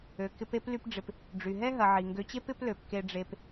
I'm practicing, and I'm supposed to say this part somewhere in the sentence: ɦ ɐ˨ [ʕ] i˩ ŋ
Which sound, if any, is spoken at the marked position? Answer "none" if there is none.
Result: ʕ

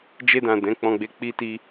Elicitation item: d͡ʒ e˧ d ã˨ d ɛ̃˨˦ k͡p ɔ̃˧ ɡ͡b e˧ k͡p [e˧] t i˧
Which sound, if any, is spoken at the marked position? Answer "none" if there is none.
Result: i˧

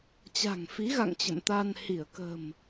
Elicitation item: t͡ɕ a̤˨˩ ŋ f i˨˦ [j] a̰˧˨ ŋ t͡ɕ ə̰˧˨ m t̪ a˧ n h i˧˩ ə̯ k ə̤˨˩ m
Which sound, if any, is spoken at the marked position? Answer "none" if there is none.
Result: ɣ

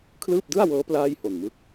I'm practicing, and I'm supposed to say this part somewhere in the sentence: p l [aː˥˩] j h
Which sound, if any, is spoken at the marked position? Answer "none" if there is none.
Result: aː˥˩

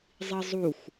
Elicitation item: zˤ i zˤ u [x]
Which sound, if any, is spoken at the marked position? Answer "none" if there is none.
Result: x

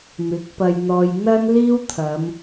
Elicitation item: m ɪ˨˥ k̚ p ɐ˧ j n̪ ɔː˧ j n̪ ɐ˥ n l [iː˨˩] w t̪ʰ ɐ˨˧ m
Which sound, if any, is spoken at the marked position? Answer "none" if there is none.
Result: iː˥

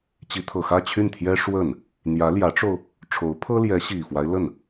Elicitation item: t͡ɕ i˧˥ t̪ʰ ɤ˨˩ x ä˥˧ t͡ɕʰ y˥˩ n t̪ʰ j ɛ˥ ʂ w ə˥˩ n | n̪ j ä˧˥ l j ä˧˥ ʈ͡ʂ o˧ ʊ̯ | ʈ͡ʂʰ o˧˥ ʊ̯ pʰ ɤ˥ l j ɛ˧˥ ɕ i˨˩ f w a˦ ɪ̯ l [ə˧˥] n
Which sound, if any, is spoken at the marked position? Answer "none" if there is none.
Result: ə˥˩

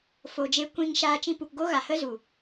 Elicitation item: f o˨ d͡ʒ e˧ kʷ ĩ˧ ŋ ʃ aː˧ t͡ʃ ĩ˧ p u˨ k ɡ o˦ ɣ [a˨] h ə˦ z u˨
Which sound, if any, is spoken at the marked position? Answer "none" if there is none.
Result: a˨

